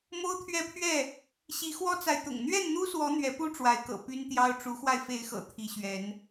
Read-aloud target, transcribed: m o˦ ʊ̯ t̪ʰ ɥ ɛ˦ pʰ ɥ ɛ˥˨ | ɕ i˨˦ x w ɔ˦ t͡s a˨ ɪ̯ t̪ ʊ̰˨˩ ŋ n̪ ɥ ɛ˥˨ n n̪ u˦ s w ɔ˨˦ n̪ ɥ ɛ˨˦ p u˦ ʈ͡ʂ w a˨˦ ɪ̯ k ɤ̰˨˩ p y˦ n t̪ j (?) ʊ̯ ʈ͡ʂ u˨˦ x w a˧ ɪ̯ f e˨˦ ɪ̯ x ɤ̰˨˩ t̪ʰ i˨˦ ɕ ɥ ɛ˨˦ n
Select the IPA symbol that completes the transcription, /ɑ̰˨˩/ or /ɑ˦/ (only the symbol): ɑ˦